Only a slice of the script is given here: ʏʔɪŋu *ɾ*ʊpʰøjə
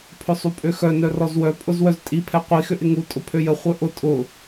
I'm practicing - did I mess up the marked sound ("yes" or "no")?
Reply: yes